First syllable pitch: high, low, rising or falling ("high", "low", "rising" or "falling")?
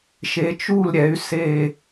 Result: rising